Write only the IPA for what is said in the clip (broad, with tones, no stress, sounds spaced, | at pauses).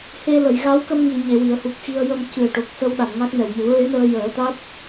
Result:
h e˧ l ə˨˩˨ j ɣ a˧˥ w k ə˧ m ŋ i˨˩˨ ɲ e˨˩˨ w i˨˩˨ ə̯ h u˨˩ k̚ x i˧ ə̯ j ə˧ m c ɨ˨˩ ə̯ ʈ o˨˩ k̚ s ə˧ w ɗ a˨˩˨ n ŋ a˦˥ k̚ n ɛ˨˩ w m u˨˩˦ ɹ e˧˥ n əː˧ j əː˨˩˦ t̪ a˦˥ t̚